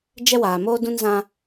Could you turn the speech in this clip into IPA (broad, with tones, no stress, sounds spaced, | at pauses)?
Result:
d͡ʒ ɛ˦ w aː˨ m oː˦ d ũ˦ n z ã˦